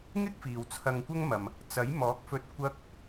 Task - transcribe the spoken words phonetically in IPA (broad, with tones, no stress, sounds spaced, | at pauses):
ŋ ɪ˥ k̚ f iː˨ w t͡sʰ ɐ˧ ŋ kʷ ɐ˥ ŋ m ɐ˨ m | t͡s ɐ˨˥ j m ɔː˨˥ k̚ f ɵ˧ t̚ kʷ ɐ˧ k̚